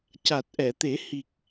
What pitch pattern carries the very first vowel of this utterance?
low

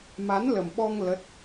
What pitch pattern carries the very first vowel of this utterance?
rising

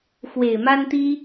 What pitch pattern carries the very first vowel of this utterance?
low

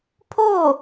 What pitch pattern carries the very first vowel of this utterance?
falling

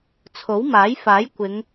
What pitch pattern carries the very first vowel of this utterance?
rising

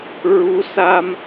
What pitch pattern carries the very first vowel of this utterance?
rising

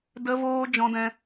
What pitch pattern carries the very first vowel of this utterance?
high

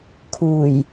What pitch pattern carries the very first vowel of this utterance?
low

